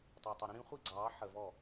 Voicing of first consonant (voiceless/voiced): voiceless